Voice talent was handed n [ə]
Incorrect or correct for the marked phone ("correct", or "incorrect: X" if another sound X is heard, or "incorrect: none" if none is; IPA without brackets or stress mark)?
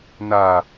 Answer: incorrect: a